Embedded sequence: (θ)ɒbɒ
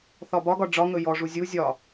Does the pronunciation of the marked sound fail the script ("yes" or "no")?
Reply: no